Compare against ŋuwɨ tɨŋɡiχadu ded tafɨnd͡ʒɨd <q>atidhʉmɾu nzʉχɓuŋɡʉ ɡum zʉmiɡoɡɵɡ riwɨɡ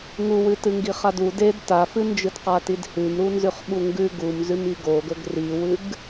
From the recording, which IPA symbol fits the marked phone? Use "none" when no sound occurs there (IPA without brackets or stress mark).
q